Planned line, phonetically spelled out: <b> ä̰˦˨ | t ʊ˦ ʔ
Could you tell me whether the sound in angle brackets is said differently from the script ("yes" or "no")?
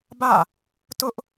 no